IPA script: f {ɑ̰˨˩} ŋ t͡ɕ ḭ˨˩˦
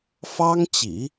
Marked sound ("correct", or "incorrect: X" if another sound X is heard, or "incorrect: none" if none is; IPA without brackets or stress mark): incorrect: ɑ˥